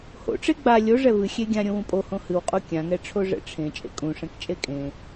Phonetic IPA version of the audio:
h o̰ ʈ͡ʂ e ɡ͡b a lʲ o ʐ ɛ v ɨ xʲ e ɡʲ ã ɾʲ õ w ũ pʼ o h õ h ɨ w qʼ o kʲ ã ŋ ɛ ʈ͡ʂʰ o ʐ ɛ̰ ʈ͡ʂʰ ẽ t͡ʃʼ ḛ kʼ ũ ʂ ɛ̃ k t͡ʃʼ e kʼ ẽ

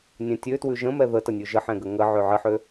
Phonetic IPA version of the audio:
nʲ ɛ̃ tʲ ø t w ʉ ʒ ə̃ m ɛ ð ə t ɐ nʲ ʉ ʒ ə ħ ɛ̃ ɡ ə ŋ ə ʕ ø ʕ ə ħ ø

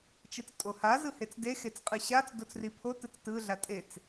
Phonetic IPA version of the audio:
t͡ʃ ɯ t͡s tʼ o h a z ɯ h e t͡s d e x e t͡s qʼ ɯ ɕ a t͡s d o t͡s r i pʰ o t ɯ t͡s t ɯ ɮ a tʼ e t͡s

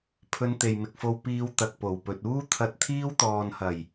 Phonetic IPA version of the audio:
pʰ ɵ˧ n t̪ e˨ j m ɪ˨ k̚ f o˧ w p iː˧ w t̪ ɐ˧ k̚ p o˨˩ w p ɵ˨ t̚ uː˥ t̪ʰ ɐ˧ t̚ t̪ʰ iː˥ w t̪ ɔː˨ n h ɐ˨˩ j

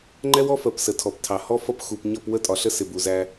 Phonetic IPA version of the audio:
ŋ͡ǃ ɛ˦ w ɔ˦ f ɜ˨ p s ə˨ tʰ ɔ˨ p tʰ ɑ˨ h ɔ˦ f ʌ˦˨ p x u˨ p ɲ ʌ˦˨ p w ə˦ tʼ ɒ˨ ɬ ə˦ s ɪ˨ b u˨ z æ˦

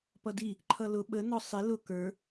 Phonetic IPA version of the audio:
p ʌ d i | ǃʰ ʌ l ʊ ɓ ə n ɔ sˤ i l ʊ k ə˞

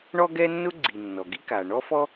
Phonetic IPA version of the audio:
ɳ ɔ˥ ɡ ɛ˥ nː ʊ˥ ɡ͡ǀ i˩ nː ɔ˩ ɡ i˥ k aː˩ ɳ ɔ˥ f ɔ˥

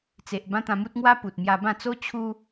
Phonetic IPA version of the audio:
t͡s e˨ ʔ b ã˦ t̪ ã˧ m u˦ t̚ ŋ w a˦ p u˨ t̚ m j a˧ b ã˥˧ t͡s o˦ t͡ɕʰ u˦

